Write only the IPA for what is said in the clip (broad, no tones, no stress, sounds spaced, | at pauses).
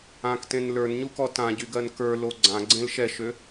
ã k t ẽ n l ə˞ n ɲ u k ɔ t ã ɟ y ɡ ɜ n k ə˞ l o ɡ͡ǀ ã ɡ͡ǀ ẽ l ʃ ɛ ʃ ø